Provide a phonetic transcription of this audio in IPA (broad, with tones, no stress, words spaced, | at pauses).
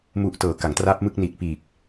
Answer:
mu˨˩ʔtɤː˩˦ ka˩˦ŋtraː˦˥p̚mɯ˥˩k̚ niː˨˩t̚piː˨˩k̚